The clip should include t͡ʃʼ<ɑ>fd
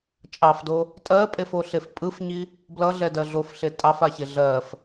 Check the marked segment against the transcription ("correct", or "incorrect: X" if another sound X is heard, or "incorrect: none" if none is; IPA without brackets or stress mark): correct